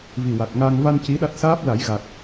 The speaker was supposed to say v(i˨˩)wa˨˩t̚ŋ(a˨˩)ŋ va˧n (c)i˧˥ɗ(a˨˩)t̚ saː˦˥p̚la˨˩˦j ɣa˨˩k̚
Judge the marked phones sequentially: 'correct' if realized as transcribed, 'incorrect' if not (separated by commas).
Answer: correct, incorrect, correct, incorrect